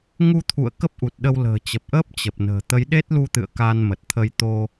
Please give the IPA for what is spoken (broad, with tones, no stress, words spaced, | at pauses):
ŋu˧t̪ʰṵ˧˨ə̯ kə˦˥p̚ʔu˨˩t̚ɗə˧w lə̤ː˨˩t͡ɕə˨˩p̚ʔəː˦˥p̚ t͡ɕə˨˩p̚nə̤ː˨˩ t̪ə˨˦jɗe˦˥t̚lu˧t̪ɨ̰˧˨ə̯ ka˧nmə˨˩t̚t̪ʰə˧j t̪o˧